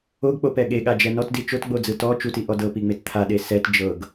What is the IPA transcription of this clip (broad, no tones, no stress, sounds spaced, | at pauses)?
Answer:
o ɡ k͡p o p ɛ ɠ e ɠ a d͡ʒ ɛ n ɔ t d i t͡ʃ o t ɡ͡b o d͡z ɯ t ɔ t͡ʃ u t i ʔ ɔ d ɤ p i ŋ͡m e t t̪ʰ a ɗ e s ɛ t d͡ʒ ɤ ɡ